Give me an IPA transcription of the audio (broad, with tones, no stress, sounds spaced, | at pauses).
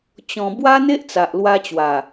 t͡ɕ ɔ̃˨˩ b w a˦ n̪ e˦ ʔ t͡s a˨ ʔ l w a˧ t͡ɕ w a˨˩